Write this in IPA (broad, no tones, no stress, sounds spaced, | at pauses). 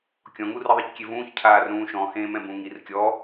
kʲ ɔ̃ ŋ u r i ðˤ i c kʲ e v ũː ç cʰ aː r ɾ ũː ʃ ɔ̃ h ẽː m ɛ̃ b ũ ŋ i r kʲ ɔ